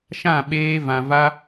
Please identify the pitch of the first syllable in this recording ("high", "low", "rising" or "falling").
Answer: falling